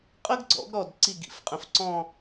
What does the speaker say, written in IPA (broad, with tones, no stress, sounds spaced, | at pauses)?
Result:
qʼ ə˥ ɡ ɡ͡ǀ ɔ̰˩˥ ɡ ɾ ɔ˧˩ d ǀ i˧˩ ɡ ḭ˧˥ f qʼ ə̃˩˥ f ǀ ɔ̃˥˨